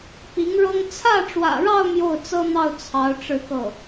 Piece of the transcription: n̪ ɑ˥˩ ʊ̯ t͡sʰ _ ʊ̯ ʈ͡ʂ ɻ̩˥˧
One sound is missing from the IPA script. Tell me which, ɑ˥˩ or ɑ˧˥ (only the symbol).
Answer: ɑ˧˥